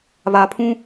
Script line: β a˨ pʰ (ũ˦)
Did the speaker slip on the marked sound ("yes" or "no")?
no